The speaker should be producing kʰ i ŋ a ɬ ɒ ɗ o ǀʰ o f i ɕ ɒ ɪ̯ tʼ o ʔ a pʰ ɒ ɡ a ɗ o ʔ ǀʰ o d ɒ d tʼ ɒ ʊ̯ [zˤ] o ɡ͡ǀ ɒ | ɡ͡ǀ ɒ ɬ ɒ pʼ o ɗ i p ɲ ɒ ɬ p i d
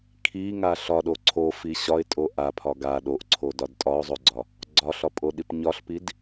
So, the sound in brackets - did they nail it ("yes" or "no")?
yes